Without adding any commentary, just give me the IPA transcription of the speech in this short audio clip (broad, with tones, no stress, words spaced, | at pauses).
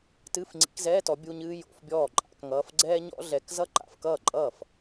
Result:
tɨː˧˥˧fŋ͡ǀḭ˨˦kzɛː˧˥˧tɔ˨˦ bʲu˧˥˧ɲɨː˥ jo̰˧˥˧fbʲɔː˥˩ǃʼa̰˨˦kŋʌː˧˥˧f ɡ͡ǀɛː˥ɲɔ̰˥ɮɛ˨˦k zʌ˥ǃa̰˨˦fkʌː˥˩ǃʼʌː˥˩f